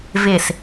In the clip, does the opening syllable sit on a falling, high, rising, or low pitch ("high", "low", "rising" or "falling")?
falling